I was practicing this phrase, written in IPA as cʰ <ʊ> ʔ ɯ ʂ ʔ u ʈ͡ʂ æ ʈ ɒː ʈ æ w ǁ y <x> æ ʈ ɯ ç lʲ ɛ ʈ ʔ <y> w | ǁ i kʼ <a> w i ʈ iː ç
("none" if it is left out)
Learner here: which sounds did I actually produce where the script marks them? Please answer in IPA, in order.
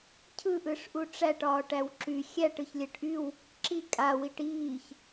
ɯ, xʲ, y, a

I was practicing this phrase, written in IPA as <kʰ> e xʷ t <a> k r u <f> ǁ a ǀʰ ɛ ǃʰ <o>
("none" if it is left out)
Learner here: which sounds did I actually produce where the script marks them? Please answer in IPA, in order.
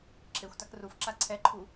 ǁʰ, a, f, u

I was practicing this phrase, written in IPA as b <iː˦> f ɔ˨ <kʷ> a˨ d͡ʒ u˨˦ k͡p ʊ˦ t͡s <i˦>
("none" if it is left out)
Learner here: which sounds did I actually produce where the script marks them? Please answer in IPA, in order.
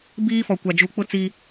iː˦, kʷ, i˦

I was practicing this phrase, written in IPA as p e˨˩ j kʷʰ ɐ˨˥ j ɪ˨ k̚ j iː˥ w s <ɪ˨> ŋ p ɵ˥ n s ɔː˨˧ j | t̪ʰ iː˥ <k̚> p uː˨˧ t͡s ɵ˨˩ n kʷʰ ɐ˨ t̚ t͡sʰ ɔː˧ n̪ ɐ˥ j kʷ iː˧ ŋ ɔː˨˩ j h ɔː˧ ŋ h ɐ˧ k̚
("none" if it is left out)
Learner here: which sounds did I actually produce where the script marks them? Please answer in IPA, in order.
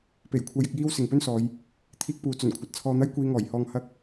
ɪ˨, k̚

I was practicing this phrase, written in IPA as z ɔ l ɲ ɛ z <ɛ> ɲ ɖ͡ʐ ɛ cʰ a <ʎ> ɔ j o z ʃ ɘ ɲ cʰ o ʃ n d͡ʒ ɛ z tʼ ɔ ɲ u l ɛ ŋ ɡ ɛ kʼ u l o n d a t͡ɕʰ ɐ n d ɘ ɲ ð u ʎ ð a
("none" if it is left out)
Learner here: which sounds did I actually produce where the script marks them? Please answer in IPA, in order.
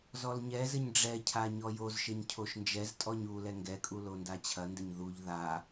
ɘ, ɲ

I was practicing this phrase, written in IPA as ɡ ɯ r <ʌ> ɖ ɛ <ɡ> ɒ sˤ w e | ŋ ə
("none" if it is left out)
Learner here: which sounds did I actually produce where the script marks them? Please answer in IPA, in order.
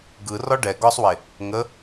ɒ, ɡ

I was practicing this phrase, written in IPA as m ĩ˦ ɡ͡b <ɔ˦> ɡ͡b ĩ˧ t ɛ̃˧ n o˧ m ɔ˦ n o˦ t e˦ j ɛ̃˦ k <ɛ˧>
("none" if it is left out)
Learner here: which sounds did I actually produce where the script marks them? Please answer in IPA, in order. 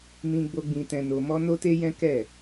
o˦, ɛ˦˨

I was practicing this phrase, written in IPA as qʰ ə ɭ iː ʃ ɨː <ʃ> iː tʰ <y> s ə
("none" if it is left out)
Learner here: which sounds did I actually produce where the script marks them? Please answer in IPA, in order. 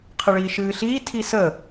ɬ, i

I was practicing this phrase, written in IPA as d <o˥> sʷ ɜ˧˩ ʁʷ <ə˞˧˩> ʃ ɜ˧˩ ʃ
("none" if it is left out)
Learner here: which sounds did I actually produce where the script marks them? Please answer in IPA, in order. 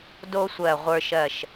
o˥, ə˞˧

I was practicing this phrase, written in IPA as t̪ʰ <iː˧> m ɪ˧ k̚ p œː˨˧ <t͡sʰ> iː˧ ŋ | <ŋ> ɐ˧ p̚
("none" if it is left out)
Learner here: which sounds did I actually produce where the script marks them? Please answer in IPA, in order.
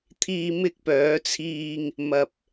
iː˧, t͡sʰ, m

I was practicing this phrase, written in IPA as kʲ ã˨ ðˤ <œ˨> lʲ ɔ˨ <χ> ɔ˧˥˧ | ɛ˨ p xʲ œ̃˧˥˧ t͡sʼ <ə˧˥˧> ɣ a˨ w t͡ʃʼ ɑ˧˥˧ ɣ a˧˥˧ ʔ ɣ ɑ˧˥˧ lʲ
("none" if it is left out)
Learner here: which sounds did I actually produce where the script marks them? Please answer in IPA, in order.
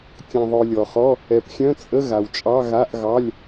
œ˨, χ, ə˧˥˧

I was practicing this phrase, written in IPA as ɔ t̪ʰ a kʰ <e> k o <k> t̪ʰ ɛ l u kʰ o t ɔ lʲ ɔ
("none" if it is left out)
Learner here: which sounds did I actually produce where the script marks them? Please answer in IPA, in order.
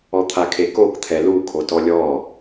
e, k

